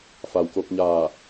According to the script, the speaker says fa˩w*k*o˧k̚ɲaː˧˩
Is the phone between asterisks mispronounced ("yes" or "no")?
no